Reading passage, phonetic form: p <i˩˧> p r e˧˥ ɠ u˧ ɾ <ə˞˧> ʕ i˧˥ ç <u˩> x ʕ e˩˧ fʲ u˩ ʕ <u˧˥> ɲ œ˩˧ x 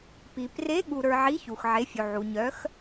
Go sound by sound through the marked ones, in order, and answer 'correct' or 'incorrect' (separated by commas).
incorrect, correct, correct, incorrect